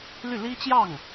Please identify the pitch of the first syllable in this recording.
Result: falling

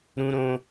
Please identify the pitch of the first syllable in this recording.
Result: high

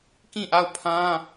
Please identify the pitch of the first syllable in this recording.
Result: falling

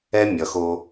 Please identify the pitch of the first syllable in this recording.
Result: high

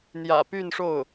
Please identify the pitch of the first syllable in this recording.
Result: low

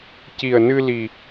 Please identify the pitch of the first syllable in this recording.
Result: low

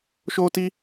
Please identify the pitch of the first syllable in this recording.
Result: high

